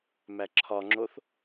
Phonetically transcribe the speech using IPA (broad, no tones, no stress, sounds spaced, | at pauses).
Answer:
m æ ǁʰ ɒ ŋ͡ǁ o θ